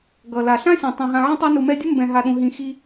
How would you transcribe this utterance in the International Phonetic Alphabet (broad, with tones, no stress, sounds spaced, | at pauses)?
ɡ ʌ˩ l a˩ ɬ ã˥ sʲ ã˩ tˤ ũ˩ ɦ ã˨ ʕ ĩ˦ tˤ o˦ n u˨ m ɛ˦ dʲ ʊ˥ m b ɛ̃˨ ɦ a˨ ɗ ũ˨ ɦ ĩ˨ x i˨